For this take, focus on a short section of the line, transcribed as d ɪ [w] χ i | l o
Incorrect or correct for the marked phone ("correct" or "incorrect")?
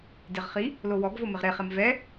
incorrect